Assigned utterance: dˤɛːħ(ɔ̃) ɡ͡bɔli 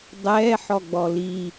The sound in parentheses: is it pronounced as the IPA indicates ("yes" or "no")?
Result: no